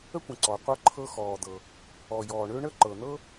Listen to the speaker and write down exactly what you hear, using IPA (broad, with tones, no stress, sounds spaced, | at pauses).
ə˥ kʷ ə̃˩ ǀ ɔ˩ qʷ ɤ˥ ǃʰ ɤ˥ x ɔː˩ d̪ ɤ˩ | ɔ˩ j ɔː˩ ɳ ø˥ ɳ ə˥ ǃ ɤ˩ n̪ ɤ˥